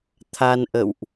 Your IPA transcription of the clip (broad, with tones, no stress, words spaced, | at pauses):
t̪ʰa˧nʔə̰˧˨wʔ